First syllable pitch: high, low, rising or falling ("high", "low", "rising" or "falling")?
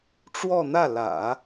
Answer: falling